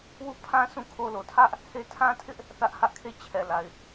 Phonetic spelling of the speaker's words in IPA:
w u˦˨ pʰ ã˦ sʰ ũ˦˨ kʰ o˦ l o˨ tʰ ä˦ ʔ | h e˦ tʰ ã˦ tʰ ɪ˦ ʔ | θ ä˦ ʔ h ä˦ ʔ kʰ e˦˨ t͡ɕʰ ɛ˨ l a˨ ɪ̯

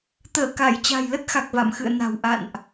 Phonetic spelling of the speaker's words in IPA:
t̪ əː˧˩ k a˧˩ j t͡ɕ a̤˨˩ j l ə˦˥ t̚ x a˨˩ k̚ v a̰˧˨ m x ɨ̰˧˨ ə̯ n a̤˨˩ w ʔ a̰˧˨ n ʔ

